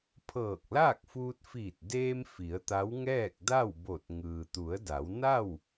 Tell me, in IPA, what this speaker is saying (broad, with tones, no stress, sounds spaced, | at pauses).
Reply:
pʰ ɤː˧˩ k̚ l aː˥˨ k̚ f uː˧ t̚ f iː˧˩ t̚ d eː˧ m f i˩˧ ə̯ t̪ a˧˥ w ŋ ɛː˥˨ k̚ d a˥˨ w b o˧˩ t̚ ŋ ɯː˩ t̪ u˩˧ ə̯ d a˩˧ w n a˥˨ w